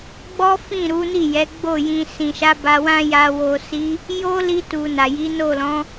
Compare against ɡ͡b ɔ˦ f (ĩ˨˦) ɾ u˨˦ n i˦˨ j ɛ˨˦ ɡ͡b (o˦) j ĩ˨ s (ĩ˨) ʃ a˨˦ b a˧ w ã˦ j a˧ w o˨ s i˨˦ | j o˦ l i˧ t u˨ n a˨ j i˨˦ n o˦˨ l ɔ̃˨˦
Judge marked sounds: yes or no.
no, no, yes

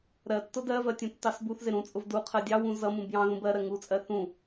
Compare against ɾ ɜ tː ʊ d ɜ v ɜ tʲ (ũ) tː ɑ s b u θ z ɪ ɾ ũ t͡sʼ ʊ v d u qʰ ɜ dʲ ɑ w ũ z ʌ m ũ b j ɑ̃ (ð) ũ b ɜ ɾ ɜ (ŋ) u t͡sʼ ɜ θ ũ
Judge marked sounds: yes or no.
yes, yes, yes

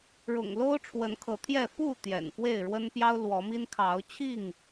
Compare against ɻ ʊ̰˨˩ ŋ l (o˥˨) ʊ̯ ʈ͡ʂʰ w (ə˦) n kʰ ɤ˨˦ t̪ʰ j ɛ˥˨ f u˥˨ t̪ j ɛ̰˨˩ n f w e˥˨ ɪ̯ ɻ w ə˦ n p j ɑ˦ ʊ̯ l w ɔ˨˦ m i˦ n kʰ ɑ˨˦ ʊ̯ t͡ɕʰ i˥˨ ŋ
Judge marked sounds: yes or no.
no, no

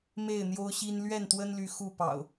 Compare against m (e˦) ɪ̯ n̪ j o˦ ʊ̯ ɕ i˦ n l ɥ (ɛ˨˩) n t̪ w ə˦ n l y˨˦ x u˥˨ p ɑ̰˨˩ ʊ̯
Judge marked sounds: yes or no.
no, no

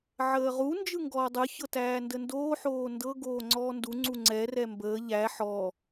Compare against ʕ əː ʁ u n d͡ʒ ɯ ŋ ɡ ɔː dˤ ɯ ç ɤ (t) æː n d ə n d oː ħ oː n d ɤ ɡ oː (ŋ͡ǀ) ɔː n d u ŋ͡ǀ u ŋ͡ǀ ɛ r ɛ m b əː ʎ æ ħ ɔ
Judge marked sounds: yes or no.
yes, yes

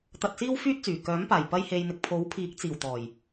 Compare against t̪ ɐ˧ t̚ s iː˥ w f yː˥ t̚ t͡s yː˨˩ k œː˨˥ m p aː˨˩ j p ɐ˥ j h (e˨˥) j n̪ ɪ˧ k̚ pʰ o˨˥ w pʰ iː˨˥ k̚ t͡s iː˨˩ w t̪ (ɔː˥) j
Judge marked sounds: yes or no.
no, no

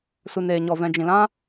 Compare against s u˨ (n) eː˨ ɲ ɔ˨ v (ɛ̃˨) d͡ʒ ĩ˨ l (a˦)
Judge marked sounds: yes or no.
yes, yes, no

